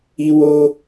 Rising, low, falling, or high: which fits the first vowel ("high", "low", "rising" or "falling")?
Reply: high